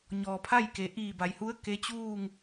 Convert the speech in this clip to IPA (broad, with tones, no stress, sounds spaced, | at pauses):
ɲ ɔː˩ pʰ a˥˨ j k e˩ ʔ iː˧˩ b a˩ j h u˧˥ ə̯ k e˧˥ t͡ɕ uː˥˨ ŋ